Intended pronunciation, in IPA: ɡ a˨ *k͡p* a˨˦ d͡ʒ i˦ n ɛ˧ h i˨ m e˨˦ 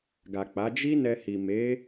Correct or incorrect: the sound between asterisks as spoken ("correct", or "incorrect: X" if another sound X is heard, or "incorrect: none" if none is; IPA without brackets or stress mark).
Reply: correct